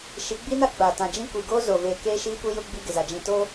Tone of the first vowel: rising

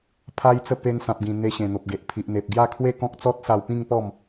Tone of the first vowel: high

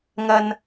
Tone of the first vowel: low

